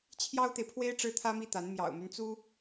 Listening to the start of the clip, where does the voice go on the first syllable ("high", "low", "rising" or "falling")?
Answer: high